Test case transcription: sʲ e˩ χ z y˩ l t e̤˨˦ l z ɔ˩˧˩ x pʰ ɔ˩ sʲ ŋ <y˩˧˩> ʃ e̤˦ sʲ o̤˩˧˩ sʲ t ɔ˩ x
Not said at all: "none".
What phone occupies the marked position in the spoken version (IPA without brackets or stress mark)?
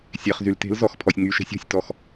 y˩˧˩